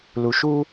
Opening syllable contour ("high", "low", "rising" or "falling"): low